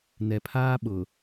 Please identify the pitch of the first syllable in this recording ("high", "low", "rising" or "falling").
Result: low